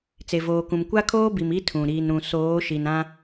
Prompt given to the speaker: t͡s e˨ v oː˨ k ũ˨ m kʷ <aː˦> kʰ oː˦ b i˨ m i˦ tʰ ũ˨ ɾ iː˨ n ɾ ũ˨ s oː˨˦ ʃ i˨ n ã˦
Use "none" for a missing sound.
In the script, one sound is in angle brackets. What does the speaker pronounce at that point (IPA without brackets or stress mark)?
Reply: a˦